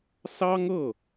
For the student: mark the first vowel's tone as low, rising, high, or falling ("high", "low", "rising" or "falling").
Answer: high